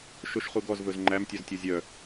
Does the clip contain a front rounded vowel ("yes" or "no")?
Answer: yes